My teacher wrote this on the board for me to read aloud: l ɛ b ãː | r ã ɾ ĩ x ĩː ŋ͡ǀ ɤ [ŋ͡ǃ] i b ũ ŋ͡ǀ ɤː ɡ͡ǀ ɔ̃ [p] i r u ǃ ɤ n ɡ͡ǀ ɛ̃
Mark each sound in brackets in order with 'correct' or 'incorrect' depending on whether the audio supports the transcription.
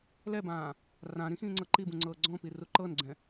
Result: incorrect: ǃ, correct

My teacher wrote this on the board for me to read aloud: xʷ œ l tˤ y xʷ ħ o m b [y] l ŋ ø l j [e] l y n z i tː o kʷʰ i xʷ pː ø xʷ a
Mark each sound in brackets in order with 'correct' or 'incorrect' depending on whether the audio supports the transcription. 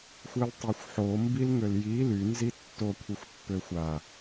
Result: incorrect: i, incorrect: i

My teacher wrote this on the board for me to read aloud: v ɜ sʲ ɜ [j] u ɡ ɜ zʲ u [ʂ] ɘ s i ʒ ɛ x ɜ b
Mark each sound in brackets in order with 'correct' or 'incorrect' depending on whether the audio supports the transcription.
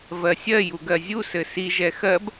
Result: correct, incorrect: s

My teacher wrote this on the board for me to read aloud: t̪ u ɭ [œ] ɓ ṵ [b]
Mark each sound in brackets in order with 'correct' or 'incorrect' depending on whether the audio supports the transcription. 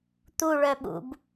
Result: correct, correct

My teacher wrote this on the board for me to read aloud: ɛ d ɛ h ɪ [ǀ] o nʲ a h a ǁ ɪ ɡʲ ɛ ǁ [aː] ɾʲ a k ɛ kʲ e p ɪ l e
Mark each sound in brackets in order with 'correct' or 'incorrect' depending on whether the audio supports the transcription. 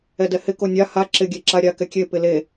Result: incorrect: k, incorrect: a

